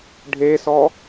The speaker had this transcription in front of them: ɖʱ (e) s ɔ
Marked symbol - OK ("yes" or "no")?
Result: yes